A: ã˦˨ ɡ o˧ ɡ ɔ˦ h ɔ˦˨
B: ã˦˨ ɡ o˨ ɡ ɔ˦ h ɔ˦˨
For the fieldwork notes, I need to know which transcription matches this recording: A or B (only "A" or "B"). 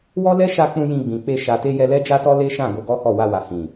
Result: A